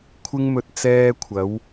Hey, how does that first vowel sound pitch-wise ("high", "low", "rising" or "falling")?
high